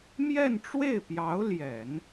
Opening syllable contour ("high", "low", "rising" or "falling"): falling